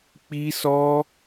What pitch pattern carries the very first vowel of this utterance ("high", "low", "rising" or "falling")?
high